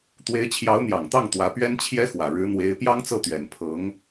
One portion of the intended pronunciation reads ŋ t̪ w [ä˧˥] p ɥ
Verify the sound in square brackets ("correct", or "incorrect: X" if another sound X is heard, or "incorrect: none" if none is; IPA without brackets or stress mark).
correct